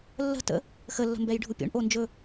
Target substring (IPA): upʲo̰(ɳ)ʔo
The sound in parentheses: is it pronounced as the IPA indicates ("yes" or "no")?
yes